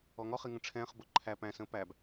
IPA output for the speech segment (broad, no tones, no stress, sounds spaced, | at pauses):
ɔ ŋ ɔ χ i ŋ ə̃ ʈ͡ʂʰ ɛ̃ː χ b ʊ ǃʰ æ p æ̃ s ə̃ː p æ b